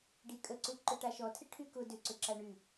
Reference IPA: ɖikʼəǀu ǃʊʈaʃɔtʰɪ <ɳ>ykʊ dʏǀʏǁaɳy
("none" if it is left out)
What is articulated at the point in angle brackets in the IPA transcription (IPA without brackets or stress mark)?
ʈʰ